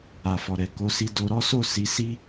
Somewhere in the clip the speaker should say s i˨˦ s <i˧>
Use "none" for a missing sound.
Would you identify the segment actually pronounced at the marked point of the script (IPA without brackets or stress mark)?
i˦